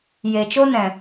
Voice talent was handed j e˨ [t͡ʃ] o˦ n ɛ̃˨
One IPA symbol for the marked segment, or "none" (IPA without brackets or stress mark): t͡ʃ